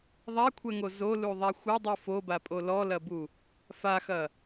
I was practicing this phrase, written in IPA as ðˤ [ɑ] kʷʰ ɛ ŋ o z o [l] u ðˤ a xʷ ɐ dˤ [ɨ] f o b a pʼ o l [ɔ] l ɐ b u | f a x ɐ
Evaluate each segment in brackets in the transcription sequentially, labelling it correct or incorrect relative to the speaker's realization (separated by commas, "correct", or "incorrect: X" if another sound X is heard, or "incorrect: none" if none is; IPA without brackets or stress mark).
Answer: incorrect: a, correct, correct, correct